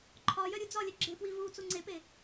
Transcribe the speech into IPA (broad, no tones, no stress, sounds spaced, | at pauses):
ǃʰ ɒ j œ ɾʲ u d͡z ɒ lʲ œ ɡ͡ǁ e p w i v u t͡s u ŋ͡ǀ e p e